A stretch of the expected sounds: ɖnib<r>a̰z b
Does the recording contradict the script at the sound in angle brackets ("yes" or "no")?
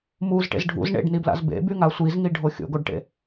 yes